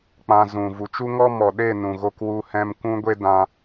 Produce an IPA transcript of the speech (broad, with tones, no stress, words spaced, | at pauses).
k͡pã˧zũ˨ vu˨t͡ʃu˦ŋɔ˦ mɔ˨ɗe˦˨nũ˨ ɣo˧kwu˧hɛ̃˧m kʷũ˦ɡʷe˦ dã˧